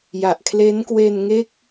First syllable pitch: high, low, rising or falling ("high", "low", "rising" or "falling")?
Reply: low